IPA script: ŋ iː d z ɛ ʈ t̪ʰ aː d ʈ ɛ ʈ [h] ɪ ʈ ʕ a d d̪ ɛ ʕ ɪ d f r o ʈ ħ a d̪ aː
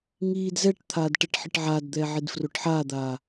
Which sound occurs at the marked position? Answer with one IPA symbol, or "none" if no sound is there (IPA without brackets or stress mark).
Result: ħ